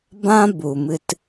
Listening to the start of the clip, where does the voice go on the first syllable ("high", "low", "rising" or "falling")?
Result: high